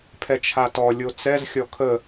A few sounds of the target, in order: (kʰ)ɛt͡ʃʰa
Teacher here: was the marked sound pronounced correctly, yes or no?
no